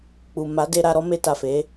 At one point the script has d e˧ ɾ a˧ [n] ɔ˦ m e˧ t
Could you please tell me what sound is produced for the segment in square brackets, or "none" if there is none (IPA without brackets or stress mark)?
ɾ